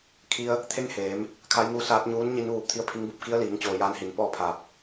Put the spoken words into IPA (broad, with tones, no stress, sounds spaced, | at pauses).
kʰ i˧ ə̯ | t̪ʰ e˥˨ ŋ h eː˩˧ m | kʰ a˧˥ j ŋ uː˧˥ s aː˧˥ t̚ ɲ uː˧˥ n ɲ i˧ n ʋ uː˧ p̚ t̪ʰ i˧˥ ə̯ pʰ i˧˥ ŋ b u˧ p̚ k i˧˥ ə̯ l iː˩˧ ŋ t͡ɕ oː˩ j aː˧˥ n h i˩˧ n p ɔː˥˨ pʰ aː˧˩ p̚